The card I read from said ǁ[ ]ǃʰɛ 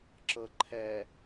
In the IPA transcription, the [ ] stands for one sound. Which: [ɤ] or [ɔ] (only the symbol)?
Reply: ɤ